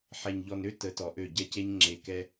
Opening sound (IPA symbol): ħ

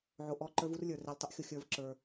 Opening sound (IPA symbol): ʕ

